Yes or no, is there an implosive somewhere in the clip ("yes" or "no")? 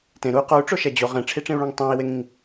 no